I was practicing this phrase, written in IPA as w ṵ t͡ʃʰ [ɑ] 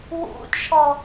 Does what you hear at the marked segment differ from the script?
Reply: yes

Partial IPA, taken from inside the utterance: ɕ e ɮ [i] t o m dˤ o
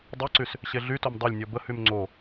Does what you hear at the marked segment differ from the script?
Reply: yes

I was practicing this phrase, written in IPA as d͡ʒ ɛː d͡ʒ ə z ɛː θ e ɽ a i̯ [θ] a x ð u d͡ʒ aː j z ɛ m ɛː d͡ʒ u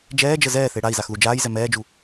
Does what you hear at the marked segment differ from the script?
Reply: yes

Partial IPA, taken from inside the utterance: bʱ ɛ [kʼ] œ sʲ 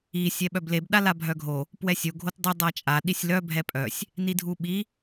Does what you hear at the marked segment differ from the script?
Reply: yes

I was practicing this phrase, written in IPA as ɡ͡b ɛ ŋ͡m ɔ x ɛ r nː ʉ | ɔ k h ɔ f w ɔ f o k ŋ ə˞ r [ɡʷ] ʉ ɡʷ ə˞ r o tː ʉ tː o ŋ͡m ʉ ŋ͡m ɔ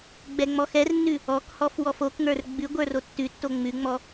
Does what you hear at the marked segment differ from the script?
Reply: yes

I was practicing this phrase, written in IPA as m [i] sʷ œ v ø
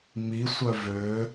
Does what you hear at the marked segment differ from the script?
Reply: no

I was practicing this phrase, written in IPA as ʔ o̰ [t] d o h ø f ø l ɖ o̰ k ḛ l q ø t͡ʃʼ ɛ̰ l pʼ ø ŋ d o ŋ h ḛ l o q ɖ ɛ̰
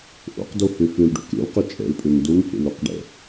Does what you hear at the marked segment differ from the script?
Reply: yes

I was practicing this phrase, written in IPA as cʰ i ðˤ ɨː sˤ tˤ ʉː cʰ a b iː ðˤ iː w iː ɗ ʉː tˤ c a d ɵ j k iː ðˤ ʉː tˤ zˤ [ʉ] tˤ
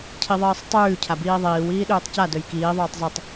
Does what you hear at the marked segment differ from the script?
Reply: no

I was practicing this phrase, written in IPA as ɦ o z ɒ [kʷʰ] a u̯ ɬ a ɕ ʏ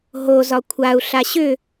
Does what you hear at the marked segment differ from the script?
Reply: no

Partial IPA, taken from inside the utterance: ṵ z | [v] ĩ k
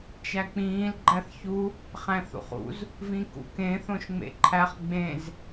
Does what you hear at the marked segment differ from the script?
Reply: no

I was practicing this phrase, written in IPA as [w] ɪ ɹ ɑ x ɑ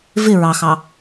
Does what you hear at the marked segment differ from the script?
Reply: yes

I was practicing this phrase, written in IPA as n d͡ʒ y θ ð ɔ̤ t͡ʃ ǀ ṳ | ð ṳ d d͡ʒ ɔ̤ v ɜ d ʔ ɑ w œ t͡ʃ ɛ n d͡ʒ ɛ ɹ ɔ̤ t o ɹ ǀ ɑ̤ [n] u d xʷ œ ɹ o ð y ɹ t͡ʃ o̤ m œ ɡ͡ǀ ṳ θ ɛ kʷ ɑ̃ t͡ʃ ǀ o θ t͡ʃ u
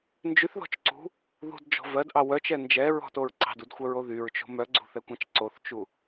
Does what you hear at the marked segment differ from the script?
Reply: yes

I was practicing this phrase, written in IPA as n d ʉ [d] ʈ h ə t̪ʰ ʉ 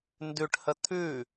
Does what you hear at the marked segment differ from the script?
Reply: yes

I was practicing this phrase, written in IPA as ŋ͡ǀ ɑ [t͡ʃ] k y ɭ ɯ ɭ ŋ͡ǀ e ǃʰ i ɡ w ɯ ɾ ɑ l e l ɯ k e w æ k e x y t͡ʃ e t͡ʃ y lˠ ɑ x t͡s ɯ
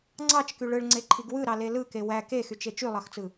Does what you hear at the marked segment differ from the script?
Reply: no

